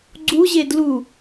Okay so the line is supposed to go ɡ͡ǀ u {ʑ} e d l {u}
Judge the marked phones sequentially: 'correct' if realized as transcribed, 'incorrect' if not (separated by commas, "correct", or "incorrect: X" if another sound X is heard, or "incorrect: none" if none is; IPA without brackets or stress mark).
correct, correct